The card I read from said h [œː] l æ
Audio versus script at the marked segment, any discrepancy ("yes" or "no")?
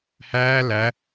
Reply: yes